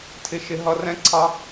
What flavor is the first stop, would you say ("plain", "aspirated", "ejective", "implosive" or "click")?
aspirated